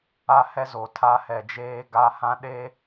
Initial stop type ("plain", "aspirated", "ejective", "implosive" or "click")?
aspirated